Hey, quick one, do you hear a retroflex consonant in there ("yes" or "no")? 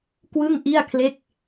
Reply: no